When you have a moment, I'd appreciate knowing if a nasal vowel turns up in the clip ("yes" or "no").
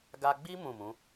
yes